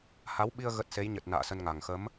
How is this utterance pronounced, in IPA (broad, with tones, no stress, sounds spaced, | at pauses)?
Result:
h a˨˦ w ɓ i˧ ə̯ ɣ ə˦˥ t̚ s e˨˦ j ɲ ə˨˩ t̚ n a̰ː˧˨ s ə˧ n ŋ a˨˩ ŋ x ə˨˦ m